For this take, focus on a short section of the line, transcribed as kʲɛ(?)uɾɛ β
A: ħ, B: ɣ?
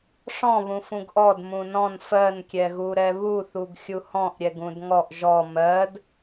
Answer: B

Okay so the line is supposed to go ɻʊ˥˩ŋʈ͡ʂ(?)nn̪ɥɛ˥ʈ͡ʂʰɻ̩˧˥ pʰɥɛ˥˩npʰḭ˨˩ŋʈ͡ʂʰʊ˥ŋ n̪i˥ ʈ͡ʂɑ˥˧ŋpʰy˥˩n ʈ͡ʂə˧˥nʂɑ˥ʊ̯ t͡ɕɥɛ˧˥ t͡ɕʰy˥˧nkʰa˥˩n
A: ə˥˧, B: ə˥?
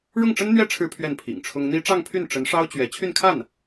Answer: B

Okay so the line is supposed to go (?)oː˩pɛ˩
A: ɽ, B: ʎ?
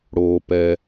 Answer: A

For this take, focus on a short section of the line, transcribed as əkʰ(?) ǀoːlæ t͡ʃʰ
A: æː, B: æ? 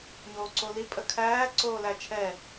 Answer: A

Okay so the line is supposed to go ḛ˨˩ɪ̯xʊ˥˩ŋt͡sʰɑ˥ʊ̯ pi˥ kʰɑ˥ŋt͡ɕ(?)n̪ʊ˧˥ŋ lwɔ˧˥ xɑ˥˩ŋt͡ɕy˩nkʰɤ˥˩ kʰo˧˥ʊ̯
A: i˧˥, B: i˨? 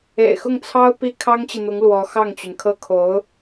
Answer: B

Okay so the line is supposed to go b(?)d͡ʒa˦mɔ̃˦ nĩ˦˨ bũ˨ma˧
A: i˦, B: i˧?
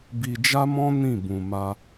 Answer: B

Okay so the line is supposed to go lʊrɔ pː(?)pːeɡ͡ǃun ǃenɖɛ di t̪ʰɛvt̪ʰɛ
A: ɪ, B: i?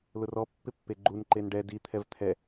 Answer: A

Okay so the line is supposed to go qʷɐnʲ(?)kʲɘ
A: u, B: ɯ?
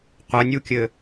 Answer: A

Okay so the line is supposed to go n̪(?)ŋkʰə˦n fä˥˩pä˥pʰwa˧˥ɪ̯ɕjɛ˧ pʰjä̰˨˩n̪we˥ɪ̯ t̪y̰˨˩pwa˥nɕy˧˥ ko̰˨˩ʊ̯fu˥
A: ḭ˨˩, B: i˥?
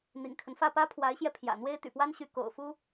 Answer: A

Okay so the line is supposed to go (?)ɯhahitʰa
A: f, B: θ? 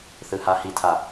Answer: B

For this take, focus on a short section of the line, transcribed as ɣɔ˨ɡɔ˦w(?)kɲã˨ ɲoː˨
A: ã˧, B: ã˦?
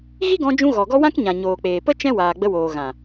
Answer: B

